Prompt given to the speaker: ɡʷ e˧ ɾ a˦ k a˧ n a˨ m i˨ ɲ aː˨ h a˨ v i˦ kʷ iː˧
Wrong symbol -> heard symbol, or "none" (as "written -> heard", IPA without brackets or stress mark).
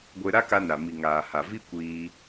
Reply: ɲ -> ŋ